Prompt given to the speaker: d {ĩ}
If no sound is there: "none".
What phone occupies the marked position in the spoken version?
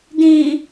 ĩ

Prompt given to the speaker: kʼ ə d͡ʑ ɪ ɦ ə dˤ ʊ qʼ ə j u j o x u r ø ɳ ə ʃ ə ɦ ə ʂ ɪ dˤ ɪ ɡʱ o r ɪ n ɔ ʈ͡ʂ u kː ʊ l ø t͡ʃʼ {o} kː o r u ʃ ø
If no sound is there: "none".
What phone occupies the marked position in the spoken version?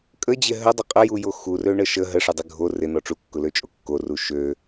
o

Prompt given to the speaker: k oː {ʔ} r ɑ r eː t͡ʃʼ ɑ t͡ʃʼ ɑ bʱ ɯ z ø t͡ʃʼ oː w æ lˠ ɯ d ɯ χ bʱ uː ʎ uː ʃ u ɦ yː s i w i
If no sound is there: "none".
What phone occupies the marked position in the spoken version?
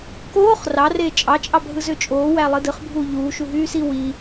χ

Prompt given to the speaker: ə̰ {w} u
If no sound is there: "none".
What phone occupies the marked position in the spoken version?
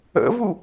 v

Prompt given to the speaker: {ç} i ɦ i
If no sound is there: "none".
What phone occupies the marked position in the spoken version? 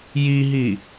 j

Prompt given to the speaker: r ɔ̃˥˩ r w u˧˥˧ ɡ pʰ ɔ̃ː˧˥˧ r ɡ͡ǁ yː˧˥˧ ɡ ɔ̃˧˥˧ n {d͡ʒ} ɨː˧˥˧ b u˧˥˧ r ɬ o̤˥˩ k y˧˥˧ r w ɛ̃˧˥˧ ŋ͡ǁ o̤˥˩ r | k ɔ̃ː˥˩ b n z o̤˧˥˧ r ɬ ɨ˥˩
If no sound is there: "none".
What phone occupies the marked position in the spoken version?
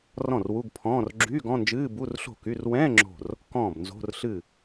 d͡ʒ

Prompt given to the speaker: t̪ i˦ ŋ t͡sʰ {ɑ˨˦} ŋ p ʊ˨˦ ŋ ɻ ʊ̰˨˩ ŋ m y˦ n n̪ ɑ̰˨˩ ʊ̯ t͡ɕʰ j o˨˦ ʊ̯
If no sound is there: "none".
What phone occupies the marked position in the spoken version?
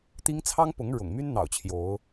ɑ˦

